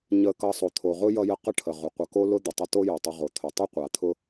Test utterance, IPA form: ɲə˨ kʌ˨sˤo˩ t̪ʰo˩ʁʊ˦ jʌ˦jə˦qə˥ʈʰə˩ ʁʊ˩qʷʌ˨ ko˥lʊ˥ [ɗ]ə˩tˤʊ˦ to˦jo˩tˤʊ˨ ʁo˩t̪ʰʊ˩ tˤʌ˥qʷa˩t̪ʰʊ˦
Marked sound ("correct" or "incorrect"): incorrect